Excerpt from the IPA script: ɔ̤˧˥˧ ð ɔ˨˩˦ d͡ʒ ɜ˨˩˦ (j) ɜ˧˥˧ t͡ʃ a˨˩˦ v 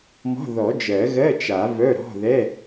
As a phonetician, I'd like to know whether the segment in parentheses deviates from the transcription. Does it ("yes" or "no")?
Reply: yes